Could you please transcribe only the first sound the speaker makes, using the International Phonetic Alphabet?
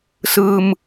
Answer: s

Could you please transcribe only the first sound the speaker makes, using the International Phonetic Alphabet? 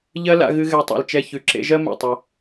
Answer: ʎ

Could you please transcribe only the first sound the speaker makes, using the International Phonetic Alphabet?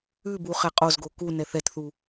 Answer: ʉ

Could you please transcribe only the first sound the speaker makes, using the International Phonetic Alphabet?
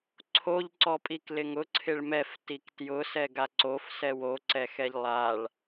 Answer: ǀʰ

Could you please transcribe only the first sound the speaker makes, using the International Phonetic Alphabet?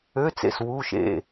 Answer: ø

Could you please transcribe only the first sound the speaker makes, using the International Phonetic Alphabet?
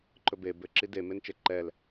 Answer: ǃ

